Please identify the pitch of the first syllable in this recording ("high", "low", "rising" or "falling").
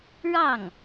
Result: falling